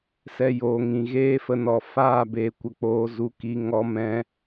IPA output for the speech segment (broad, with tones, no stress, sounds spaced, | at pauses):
s ɛ˨ j oː˨ ŋ ĩ˨ ɣ eː˦ f ə˧ n ɔ˨ f aː˦˨ b eː˧ kʷ ə˧ k͡p oː˧ z u˧ k i˧ ŋ ɔ˦ m ɛ̃˦